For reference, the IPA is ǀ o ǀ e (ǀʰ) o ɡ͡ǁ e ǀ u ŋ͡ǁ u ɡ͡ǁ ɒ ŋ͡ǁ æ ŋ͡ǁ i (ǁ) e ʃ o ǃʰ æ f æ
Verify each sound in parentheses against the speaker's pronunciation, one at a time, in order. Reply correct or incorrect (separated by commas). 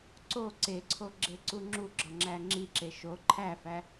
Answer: correct, correct